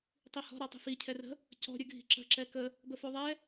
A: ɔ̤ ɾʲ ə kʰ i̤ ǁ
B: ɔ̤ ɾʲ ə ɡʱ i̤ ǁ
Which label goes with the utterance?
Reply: B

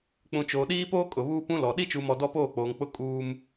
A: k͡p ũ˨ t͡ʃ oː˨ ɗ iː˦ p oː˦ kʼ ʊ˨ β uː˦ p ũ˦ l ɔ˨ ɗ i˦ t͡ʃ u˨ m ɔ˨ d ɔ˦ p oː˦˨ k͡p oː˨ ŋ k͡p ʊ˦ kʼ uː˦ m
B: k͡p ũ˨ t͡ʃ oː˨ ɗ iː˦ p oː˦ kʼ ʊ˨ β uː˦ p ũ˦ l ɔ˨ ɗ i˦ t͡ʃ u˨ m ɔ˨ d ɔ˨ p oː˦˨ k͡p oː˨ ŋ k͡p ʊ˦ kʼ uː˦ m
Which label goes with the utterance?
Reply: A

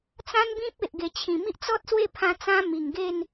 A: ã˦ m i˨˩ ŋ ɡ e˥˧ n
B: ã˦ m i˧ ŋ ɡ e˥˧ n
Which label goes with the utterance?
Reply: A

